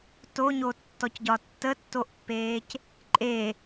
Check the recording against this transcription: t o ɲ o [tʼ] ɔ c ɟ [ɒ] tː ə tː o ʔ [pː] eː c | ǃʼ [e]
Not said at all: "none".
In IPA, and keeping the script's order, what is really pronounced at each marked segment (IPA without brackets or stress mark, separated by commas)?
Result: tː, ɒ, pː, e